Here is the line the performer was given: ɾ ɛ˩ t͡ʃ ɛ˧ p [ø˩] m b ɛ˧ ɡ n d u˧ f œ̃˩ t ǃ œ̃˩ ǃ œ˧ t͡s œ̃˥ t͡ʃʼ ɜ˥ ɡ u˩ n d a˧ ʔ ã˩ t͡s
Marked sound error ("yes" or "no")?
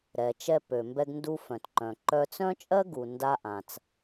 no